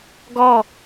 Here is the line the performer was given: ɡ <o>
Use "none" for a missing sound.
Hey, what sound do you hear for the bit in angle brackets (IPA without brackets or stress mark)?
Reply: ɔ